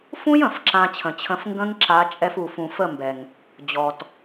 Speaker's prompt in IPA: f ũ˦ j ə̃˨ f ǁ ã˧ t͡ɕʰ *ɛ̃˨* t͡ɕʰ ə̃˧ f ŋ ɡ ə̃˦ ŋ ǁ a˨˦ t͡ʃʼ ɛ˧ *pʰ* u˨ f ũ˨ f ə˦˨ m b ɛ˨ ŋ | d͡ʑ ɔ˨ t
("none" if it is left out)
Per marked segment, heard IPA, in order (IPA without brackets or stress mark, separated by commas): ə̃˨, f